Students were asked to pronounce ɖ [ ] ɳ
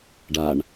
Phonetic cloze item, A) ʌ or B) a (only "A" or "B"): B